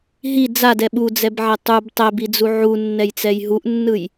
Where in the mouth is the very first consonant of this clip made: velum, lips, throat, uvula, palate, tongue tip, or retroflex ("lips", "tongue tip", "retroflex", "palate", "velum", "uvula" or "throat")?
throat